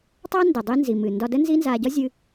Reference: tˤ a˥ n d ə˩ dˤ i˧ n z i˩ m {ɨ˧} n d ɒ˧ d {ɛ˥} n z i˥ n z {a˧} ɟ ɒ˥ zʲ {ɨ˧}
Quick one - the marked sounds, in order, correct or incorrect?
incorrect: ɨ˩, incorrect: ə˥, correct, correct

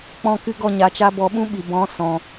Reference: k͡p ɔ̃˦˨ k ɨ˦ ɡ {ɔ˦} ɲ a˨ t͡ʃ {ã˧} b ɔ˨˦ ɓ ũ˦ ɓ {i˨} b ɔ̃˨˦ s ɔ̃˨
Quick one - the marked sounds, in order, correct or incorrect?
incorrect: ɔ˦˨, incorrect: a˧, correct

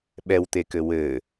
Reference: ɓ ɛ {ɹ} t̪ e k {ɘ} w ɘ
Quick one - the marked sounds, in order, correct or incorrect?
incorrect: w, correct

